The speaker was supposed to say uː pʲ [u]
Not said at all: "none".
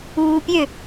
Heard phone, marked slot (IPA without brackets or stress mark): ø